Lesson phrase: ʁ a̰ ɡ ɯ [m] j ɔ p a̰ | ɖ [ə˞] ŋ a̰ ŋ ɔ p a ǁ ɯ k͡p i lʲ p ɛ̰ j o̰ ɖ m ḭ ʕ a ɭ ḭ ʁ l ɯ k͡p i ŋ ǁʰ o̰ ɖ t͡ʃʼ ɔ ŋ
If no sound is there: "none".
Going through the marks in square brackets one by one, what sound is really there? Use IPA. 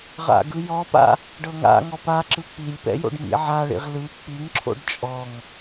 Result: none, ɤ

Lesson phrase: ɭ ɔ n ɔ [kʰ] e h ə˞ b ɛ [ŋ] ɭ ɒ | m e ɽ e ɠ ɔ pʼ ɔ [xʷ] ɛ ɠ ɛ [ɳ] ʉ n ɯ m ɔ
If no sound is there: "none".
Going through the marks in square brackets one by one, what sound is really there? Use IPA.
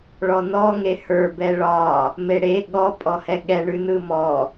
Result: ŋ, none, h, ɳ

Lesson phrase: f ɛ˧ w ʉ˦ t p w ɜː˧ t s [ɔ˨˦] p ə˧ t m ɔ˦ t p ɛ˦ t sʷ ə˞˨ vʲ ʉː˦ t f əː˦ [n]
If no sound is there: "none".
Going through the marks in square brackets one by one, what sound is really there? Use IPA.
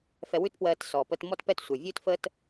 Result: ɔ˨, t

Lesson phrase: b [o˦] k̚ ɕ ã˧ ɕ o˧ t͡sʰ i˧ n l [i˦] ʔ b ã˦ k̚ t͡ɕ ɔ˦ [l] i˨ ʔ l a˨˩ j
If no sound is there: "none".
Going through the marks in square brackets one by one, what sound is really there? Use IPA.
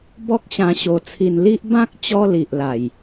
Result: ɔ˦, i˦, l

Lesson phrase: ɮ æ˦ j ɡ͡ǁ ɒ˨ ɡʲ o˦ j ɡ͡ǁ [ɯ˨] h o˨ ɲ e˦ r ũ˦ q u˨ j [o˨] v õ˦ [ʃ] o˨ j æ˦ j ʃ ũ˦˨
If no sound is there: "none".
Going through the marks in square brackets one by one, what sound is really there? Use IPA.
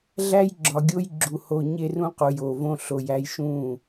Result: u˨, o˨, ɬ

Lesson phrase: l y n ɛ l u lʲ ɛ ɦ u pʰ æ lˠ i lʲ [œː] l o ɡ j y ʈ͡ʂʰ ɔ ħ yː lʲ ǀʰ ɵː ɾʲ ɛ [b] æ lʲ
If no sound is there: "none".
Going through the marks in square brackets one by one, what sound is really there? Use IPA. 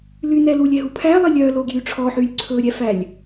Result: œː, f

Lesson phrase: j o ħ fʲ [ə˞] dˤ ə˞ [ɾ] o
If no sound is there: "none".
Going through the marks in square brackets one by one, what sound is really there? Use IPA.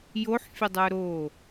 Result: ə, ɾ

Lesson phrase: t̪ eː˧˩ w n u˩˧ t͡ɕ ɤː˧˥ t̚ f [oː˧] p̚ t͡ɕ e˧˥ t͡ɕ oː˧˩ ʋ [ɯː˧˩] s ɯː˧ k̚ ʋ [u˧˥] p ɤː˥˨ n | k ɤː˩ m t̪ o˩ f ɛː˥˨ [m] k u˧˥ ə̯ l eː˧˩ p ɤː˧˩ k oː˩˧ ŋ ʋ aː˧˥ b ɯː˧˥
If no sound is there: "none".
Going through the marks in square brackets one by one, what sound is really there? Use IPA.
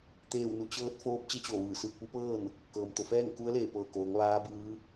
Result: oː˧˥, ɯː˧˩, u˧˥, ŋ

